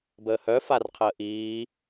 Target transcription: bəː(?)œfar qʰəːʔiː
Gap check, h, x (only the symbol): h